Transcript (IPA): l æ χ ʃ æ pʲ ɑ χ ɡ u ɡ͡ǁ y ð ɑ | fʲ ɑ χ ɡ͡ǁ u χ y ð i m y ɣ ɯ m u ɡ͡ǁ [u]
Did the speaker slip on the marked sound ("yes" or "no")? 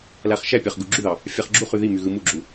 no